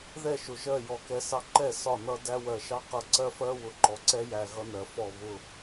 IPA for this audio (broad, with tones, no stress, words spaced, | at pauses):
ðɛ˦˨ʃʊ˨ʒɜ˦˨ jɔ˨kɛ˧ sɑ˧ǃɛ˦˨ sɒ˦˨nʌ˦dæ˦ wɜ˨ʃɑ˦qʌ˧ ǀɜ˦fɜ˦ wʊ˨ǃɔ˨ǀɛ˦ jæ˧ɣʌ˦nɜ˨ fɔ˦˨βʊ˦˨